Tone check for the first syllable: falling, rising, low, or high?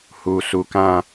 low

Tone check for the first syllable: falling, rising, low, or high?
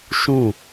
falling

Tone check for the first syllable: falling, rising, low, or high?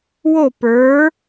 falling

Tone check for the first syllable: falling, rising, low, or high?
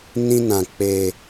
high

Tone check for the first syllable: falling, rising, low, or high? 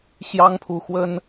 high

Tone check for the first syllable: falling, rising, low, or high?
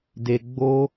low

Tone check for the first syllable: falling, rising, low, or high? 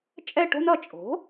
falling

